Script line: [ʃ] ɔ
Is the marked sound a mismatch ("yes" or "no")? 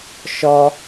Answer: no